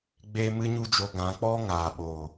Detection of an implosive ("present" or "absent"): present